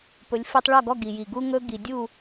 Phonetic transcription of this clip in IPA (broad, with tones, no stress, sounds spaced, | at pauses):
p ɵ˩˥ lʲ f i˧ tˤ ɭ ɔ˥˩ ɡ ɔ˥˩ ɡ i˩ j i˩ ɡ u˥ ŋ ɵ˥ ɡ i˩ dʲ u˥˩